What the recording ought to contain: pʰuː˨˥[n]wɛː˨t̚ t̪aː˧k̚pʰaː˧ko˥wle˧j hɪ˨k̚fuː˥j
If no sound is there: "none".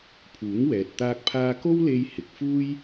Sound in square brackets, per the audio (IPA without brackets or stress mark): ŋ